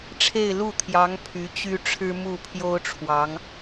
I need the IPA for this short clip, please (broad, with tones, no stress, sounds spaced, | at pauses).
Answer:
ʈ͡ʂʰ e˥˧ ɪ̯ l u˥˩ t̪ʰ j ɑ˧˥ ŋ pʰ y˧˥ t͡ɕ y˥ ʈ͡ʂʰ ɻ̩˥ m u˥˩ pʰ j o˥ ʊ̯ ʈ͡ʂʰ w ɑ˧˥ ŋ